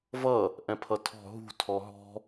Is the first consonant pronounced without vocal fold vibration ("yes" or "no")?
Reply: no